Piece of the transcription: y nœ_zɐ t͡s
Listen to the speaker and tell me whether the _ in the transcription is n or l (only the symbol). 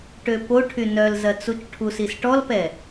l